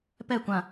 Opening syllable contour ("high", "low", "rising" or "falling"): falling